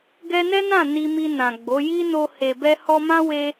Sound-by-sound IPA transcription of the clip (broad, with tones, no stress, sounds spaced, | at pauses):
ɡ ɛ˧ n ɛ˦ n ã˦˨ n i˧ m i˧ n ã˨ ɡ͡b o˨˦ j i˦ n o˧ h e˨ b ɛ˧ h ɔ˧ m ã˦ w e˧